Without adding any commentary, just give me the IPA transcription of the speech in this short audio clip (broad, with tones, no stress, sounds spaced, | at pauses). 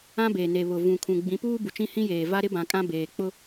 ã˦ b e˨ n e˨ β ʊ˨ v ũ˨ kʰ ũ˨ ɡ͡b ĩ˨˦ p uː˦ b u˨ t͡ʃ ĩ˦ h ĩ˦ j eː˨ v a˦ ɾ ɪ˦ b ã˨ kʼ ã˦ b eː˨ k͡p ʊ˦